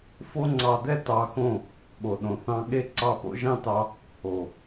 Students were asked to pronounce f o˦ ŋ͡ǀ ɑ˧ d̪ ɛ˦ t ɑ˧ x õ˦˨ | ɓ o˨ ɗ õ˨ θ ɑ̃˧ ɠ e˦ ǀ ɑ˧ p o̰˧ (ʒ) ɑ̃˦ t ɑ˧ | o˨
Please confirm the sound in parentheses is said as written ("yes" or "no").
yes